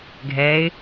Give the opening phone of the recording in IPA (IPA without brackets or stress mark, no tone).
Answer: ɡʱ